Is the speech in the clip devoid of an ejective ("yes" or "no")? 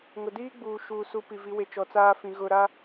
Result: yes